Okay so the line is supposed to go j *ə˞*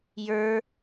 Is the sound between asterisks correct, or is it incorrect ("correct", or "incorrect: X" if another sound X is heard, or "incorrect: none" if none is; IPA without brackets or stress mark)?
correct